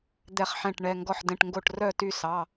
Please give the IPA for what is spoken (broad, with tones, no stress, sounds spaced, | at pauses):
d̪ ɛ˥˧ χ ħ ɛ̃˥˧ ʈ ɳ ɛ˧˥˧ ŋ ɡ ɔ˥˧ ħ d ɛ̃˧˥˧ ʈ ŋ ɡ o˥˧ ʈ r œ˥˧ t y˥˧ s ɑ˧˥˧